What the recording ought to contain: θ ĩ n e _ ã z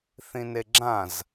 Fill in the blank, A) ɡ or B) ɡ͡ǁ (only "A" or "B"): B